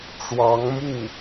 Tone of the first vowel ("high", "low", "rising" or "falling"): rising